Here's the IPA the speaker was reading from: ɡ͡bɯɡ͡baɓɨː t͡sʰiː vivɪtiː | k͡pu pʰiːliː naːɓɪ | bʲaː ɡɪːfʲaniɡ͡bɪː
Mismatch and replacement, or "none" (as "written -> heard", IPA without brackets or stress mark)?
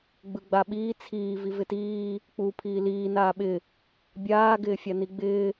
ɨː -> iː